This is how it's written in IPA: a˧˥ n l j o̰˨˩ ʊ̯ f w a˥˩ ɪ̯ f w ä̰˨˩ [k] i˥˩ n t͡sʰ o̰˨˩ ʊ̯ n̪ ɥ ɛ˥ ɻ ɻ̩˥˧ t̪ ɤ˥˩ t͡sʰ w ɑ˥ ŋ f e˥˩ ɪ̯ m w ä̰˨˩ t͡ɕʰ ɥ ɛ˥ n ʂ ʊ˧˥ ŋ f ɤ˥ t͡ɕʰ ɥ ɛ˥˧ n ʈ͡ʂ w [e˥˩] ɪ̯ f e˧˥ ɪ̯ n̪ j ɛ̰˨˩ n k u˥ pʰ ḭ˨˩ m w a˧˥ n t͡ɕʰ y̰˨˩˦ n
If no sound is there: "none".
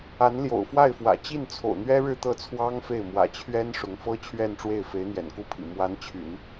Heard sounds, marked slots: t͡ɕ, e˥˩

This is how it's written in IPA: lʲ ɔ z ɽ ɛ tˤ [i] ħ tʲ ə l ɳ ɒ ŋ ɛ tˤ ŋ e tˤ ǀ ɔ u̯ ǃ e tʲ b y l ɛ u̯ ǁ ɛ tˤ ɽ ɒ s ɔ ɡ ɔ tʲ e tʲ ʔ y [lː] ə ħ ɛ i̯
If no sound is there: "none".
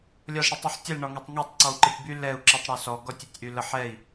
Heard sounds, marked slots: y, l

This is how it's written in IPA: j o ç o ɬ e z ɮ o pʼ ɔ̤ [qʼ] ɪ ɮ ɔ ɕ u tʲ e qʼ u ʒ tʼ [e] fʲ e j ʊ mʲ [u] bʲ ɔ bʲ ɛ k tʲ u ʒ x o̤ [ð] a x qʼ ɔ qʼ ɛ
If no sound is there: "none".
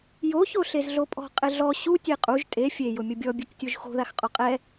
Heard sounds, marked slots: qʼ, e, ʊ, ð

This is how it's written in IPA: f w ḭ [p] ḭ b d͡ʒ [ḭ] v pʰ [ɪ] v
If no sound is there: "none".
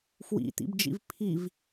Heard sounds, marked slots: t̪, ḭ, i

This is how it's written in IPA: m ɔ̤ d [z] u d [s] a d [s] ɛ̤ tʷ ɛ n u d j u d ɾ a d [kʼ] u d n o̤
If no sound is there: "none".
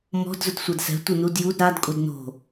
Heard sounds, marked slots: z, sʷ, s, kʼ

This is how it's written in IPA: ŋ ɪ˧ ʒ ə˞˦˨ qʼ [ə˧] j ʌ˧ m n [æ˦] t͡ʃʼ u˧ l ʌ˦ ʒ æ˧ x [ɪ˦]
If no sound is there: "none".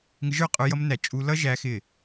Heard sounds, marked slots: ə˞˧, æ˨, ɪ˦˨

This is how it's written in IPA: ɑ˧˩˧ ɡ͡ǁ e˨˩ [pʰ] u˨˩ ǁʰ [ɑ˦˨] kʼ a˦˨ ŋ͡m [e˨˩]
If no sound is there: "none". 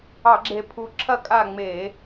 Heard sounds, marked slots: pʰ, ɐ˦˨, e˧˩˧

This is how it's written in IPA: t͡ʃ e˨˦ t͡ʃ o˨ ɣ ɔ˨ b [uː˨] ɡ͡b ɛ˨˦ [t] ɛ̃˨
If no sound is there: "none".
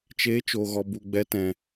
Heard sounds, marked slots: u˨, t

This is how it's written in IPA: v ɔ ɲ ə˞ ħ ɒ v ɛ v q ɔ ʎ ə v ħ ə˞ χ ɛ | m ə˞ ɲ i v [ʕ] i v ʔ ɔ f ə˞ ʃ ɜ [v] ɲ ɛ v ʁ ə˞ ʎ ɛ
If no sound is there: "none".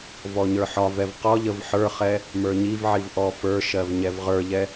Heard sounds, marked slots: ʕ, v

